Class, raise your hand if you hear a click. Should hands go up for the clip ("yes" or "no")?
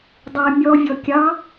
no